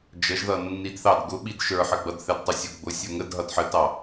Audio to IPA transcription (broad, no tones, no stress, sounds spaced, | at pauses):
d͡ʒ ə ʒ ð ʌ nː i d θ ɑ d ɡ ʊ ɓ i d ʃ ə˞ ħ ə ɡ͡b ʌ d θ ɛ d tˤ u sʲ ʊ ɡ͡b ʊ sʲ ə˞ ŋ ə d ɦ ʌ d ħ ə t ɑ